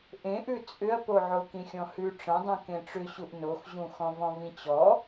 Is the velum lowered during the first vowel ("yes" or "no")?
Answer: yes